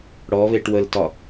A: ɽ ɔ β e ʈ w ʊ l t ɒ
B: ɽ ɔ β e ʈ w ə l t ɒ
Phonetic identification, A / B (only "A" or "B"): B